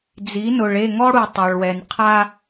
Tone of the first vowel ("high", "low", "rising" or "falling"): rising